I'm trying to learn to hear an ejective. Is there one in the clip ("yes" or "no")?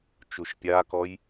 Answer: no